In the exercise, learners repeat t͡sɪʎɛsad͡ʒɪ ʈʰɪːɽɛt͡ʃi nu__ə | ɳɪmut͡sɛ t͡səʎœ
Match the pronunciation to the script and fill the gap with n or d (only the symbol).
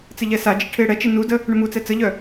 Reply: d